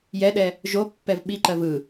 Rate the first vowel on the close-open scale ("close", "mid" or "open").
mid